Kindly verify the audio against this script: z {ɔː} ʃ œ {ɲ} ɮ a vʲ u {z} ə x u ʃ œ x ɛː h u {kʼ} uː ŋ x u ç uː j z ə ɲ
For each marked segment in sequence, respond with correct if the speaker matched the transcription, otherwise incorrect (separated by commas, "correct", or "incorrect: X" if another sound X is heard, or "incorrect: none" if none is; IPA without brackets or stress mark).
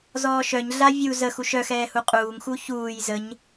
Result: correct, correct, correct, incorrect: qʼ